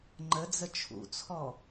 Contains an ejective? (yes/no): no